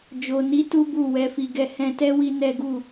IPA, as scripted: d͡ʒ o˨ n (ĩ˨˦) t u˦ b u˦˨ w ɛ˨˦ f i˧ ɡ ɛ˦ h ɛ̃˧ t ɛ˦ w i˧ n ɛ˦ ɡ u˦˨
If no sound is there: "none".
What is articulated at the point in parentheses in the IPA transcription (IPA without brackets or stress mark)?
i˨˦